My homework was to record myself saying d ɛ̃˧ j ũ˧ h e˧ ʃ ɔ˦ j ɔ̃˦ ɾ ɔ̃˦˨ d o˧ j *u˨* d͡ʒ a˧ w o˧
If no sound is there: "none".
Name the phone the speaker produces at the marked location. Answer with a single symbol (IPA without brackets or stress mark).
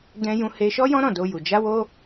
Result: u˨